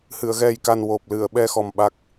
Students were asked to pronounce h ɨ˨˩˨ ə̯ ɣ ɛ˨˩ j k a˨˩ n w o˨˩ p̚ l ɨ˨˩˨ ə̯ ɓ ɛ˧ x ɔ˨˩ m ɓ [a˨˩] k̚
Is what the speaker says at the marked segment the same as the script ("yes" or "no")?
no